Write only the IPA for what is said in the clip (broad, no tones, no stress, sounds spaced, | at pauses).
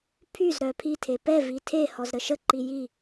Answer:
pʰ y z ɾ œ pʰ i tʰ e p ɛ v i tʰ e h ɔ z ɾ ə ʃ ə ǃ i j i